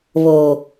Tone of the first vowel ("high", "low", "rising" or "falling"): low